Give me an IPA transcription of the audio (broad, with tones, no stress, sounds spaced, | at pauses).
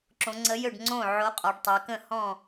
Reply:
ǁ õ˩˧ ŋ͡ǀ ə˨˥ j ø˥˩ ɖ ŋ͡ǀ õ˥˩ ʕ o˨˥ qʼ ɔ˩˧ ɖ tˤ e˩˧ k ə̃˥˩ h ɔ̃˥˩